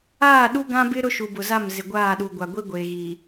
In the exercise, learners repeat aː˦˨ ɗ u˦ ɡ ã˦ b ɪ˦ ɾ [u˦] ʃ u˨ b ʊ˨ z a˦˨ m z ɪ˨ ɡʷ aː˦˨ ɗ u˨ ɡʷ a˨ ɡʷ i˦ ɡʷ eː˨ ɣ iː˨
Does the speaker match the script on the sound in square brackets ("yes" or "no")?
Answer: no